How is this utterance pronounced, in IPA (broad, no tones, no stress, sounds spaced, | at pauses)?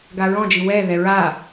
ɡ a ɹ ɔ̃ d͡ʒ i w ɛ ð ɛ ɹ a